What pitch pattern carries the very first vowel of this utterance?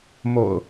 low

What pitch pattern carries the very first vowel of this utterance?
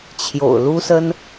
low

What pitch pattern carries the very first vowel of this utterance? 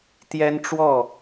high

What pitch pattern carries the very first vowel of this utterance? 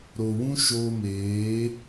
low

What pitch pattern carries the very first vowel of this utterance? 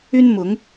high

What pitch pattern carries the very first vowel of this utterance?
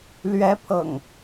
rising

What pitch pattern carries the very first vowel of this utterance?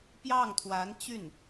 falling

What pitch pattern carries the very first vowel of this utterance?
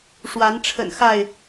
rising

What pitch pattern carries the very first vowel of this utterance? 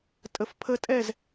low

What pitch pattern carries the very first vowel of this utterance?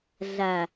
low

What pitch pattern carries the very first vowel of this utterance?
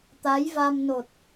rising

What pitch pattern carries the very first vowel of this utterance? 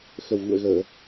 low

